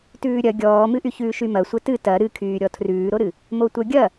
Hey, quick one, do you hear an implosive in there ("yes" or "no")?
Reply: no